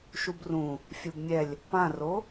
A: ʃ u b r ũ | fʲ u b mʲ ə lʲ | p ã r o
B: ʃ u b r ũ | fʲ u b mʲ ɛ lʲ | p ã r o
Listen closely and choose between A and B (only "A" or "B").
B